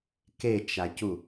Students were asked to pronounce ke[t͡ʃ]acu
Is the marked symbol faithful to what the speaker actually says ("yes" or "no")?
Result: yes